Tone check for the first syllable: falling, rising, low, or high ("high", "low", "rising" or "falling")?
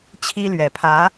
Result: high